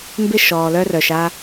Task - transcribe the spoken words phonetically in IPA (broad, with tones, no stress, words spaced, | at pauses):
mbɪ˦ ʃɔː˨lœ˦rœ˨ʃ a˦